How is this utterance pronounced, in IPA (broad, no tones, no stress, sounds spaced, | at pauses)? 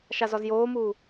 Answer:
ʃ a z ɒ z j oː m uː